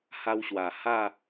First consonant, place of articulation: glottal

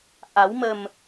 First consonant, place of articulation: glottal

